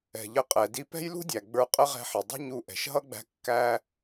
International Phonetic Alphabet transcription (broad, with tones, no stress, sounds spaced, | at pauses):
ɛ̤˩ ʎ ə˧ qʼ ɛ˩ d i˧ p ɛ̤˥ j l ṳ˥ dʲ æ˩ ɡ͡b ə˞˧ qʼ ə˥ ʁ ɛ̤˧ ħ ɪ˩ dˤ ṳ˥ ɲ u˧ ʔ ɛ̤˩ ʃ ɦ ʌ˥ ɡ͡b æ̤˧ kː æ˧